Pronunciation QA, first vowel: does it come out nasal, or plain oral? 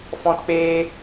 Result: nasal